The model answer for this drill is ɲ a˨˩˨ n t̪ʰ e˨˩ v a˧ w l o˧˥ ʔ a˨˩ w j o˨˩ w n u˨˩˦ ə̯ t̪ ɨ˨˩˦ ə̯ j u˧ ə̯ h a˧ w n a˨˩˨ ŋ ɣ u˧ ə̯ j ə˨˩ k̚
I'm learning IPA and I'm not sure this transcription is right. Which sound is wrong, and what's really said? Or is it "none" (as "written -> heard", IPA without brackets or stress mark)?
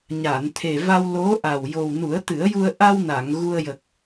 h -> ʔ